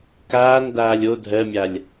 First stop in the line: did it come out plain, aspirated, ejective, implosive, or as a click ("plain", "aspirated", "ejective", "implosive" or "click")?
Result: plain